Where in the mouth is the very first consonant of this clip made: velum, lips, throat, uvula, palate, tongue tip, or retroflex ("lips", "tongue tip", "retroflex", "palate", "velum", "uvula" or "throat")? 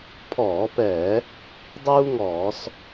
lips